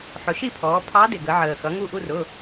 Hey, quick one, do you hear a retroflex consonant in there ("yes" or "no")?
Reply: no